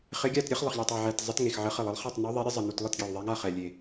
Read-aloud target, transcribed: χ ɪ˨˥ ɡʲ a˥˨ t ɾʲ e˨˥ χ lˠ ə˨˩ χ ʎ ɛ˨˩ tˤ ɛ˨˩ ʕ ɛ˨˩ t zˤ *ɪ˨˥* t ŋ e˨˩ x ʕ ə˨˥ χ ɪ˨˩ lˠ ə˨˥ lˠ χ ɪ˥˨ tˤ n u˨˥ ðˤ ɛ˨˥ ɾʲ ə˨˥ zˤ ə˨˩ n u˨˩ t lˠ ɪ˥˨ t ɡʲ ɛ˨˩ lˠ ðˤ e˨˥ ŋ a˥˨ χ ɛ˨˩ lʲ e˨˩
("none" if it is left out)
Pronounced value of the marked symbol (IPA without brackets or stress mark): ɪ˨˥